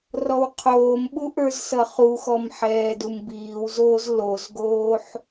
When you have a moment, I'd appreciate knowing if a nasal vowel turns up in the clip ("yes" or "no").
no